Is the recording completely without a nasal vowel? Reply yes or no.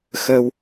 yes